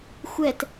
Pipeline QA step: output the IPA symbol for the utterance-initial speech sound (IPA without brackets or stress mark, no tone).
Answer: xʷ